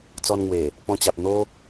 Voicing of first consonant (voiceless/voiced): voiceless